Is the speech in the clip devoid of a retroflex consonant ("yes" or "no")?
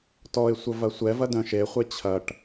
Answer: no